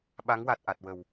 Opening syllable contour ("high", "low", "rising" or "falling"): rising